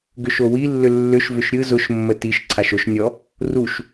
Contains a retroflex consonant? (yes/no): no